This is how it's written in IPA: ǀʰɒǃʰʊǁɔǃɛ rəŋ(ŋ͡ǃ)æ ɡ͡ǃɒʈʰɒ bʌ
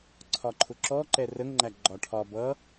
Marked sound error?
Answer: no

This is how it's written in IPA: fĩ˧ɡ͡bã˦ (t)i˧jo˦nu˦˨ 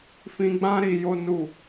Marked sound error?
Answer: yes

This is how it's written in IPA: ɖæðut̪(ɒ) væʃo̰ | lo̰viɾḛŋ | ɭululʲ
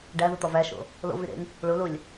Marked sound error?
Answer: no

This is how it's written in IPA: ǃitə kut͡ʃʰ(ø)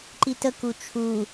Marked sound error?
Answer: yes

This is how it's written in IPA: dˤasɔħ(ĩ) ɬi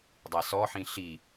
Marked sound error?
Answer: no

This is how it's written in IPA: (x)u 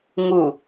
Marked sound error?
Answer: yes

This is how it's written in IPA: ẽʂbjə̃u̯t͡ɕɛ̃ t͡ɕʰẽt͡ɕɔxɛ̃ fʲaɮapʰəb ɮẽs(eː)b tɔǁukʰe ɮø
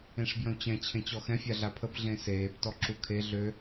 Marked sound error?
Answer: no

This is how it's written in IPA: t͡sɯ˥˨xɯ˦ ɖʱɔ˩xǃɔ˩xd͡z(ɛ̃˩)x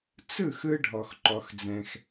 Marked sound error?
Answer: no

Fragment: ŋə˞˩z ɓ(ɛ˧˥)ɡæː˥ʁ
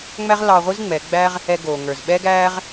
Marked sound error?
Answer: yes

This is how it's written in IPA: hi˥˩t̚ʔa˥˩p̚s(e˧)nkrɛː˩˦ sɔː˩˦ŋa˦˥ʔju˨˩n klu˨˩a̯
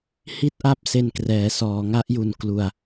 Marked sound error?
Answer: no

